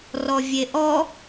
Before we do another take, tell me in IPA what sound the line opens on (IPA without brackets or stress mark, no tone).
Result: r